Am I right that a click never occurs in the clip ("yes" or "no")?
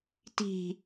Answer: yes